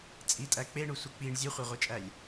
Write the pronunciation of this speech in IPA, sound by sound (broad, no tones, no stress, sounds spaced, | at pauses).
t͡sʼ i tʼ æ k͡p e ɳ u sʷ i k͡p i ɳ zʲ u χʷ e ʁʷ e t͡ʃʼ æ lʲ